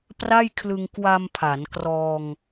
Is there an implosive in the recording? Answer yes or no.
no